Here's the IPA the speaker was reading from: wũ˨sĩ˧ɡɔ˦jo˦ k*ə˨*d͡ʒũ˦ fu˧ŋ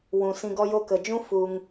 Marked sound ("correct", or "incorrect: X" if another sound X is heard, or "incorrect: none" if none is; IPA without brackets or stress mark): correct